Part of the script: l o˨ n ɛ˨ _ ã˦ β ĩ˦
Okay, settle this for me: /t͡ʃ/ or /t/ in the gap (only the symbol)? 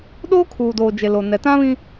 t